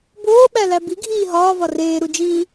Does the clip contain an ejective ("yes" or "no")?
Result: no